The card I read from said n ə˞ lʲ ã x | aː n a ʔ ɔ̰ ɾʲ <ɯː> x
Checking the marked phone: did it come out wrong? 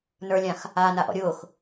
yes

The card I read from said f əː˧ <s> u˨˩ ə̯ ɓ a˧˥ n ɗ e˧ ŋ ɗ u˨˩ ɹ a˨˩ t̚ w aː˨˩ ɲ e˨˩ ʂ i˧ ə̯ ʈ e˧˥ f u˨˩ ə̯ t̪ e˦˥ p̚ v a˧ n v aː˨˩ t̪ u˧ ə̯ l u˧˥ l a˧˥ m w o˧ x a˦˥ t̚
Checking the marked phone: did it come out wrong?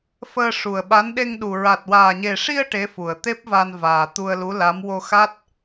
yes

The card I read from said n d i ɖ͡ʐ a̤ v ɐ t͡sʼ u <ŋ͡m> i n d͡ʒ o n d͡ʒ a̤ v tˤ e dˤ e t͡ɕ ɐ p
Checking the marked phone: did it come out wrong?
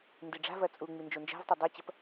no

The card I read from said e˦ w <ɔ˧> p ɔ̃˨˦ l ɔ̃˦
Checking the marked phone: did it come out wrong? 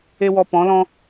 no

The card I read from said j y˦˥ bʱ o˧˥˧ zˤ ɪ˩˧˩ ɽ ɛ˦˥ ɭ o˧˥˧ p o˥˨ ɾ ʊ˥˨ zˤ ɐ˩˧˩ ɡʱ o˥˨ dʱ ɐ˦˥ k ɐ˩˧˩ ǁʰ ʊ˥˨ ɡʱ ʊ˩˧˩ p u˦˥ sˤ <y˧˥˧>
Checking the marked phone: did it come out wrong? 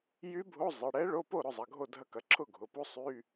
no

